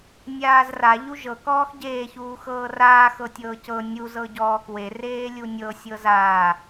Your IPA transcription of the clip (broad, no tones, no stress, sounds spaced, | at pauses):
nʲ aː z r a ʎ u ʒ ɤ k ɔː x ɟ eː ç uː x ɤː r aː x ɤ tʲ ɤː c ɤ nʲ u z ɤ ɟ ɔː k w e r eː lʲ u nʲ ɤ sʲ ɤ z aː